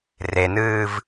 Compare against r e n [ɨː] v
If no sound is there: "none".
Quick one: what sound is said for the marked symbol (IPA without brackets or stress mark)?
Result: ɨː